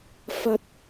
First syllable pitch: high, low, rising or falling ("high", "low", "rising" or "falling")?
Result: high